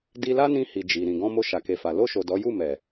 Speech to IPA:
d i˧ l a˦ n ĩ˧ h i˨ d͡ʒ i˨ ɾ ĩ˨ ɡ ɔ̃˧ m o˧ ʃ a˨ k e˨ f a˨ l o˧ ʃ o˨ d ɔ˨˦ j u˦˨ m ɛ˨

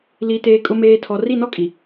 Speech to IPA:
l i˨ t eː˨ kʼ ʊ˨ m eː˨ tʰ ɔ˨ r i˦˨ n ɔ˦ kʼ i˨

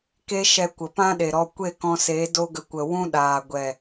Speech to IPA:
k e˦ ʃ ɛ˧ kʷ ə˨ p ã˦ ɗ e˨ ɾ ɔ˧ kʷ e˦˨ k ɔ̃˧ s e˨˦ d o˦ ɡ ə˧ kʷ ə˨ w ũ˦ ɗ aː˨ ɡʷ ɛ˨

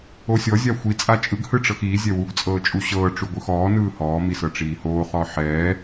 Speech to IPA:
o sʲ ɔ zʲ a xʷ i t͡sʼ a t͡ʃʼ ɯ ɡ h ɯ ʈ͡ʂ ɤ x iː zʲ ɛ w u ɡ t͡sʼ ɤː t͡ʃʼ u ɕ ɤː ʈ͡ʂ u ɡʷ ɯ x ɔː n ɯː h ɔː m i s ɤ ʈ͡ʂ iː h oː χ ɔ ħ ɛː

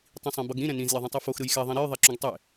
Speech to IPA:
tˤ ĩ sˤ ɛ̃ b ʌ ɡ ɾ ĩ ɾ ɛ̃ n ĩ z lʲ ɛ ðˤ ũ tˤ i f o x ɾ ɯ j x ɛ ðˤ ĩ ɾ e j ðˤ e ǁ ũ ɡ tˤ e

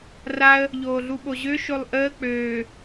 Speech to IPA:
r a ə̯ | ʎ oː ɮ u ɓ o ʑ ø ʃ o lˠ ʔ əː k͡p øː

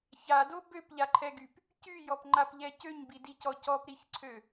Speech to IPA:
ç a d o b ø p ʎ a ǃʰ ɛ ɡ y p | c y j ɔ p ŋ͡ǃ a p ʎ ɛ c ø ɲ b i d i c ɔ c ɔ p ɾ i ç ǀʰ ø

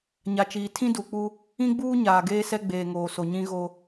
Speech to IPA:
ɲ a˨ t͡ʃ iː˨ tʰ ĩ˦ d u˨ k͡p u˦ | ĩ˦ ɡ͡b uː˦ ɲ aː˨ ɡ eː˦ s ɛ˦ ɡ͡b eː˨ ŋ oː˨ s o˨ ɲ ĩ˦ ɣ o˦

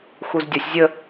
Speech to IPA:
x u z dʲ ɒ sʲ zʲ ə

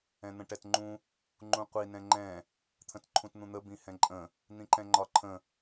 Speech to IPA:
ɛ̃ n̪ ə̃ ʈ ɛ t ŋ͡ǃ ũ | ŋ͡ǃ ũ qʷ i n ɛ̃ ŋ͡ǃ ɛ̃ | t̪ʰ ə̃ t ǃʰ ũ t n̪ ũ n̪ ə b ĩ h ɛ̃ ǃʼ ə̃ | n̪ ĩ ǃ ɛ̃ ŋ͡ǃ ɒ ǃʰ ə̃

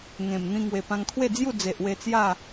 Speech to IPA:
ŋ ẽ˨˩ m n̪ ĩ˧ ŋ w e˨˩ p ã˧ ŋ kʰ w e˥˧ d͡z j u˥˧ d͡z e˨ ʔ w e˧ t͡s j a˥˧

